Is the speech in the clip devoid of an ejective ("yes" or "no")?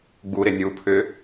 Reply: yes